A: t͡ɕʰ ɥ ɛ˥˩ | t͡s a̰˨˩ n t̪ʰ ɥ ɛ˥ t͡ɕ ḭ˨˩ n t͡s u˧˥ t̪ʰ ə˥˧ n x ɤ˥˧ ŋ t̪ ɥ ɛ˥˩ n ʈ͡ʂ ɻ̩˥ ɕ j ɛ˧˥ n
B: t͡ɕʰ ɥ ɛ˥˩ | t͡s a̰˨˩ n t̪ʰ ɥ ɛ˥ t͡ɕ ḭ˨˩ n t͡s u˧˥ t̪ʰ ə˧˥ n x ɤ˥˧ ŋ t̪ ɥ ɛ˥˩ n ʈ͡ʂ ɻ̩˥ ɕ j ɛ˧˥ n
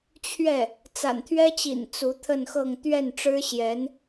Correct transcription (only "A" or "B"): A